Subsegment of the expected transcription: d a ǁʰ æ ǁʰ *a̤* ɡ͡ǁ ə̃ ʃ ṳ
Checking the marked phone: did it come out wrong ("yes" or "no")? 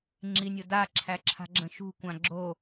no